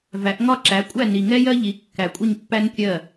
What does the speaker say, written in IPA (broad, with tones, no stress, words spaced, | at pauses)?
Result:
væ˨˦ʔ ŋɒ˦˨ǁæ˨˦kʷʼæ˦˨ ni˨ŋɛ˦jɜ˦ ʎi˨˦kːæ˨kʷʼɪ˦˨ɲpːæ˦n kʲɜ˦˨